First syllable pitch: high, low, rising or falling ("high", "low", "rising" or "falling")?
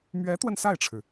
rising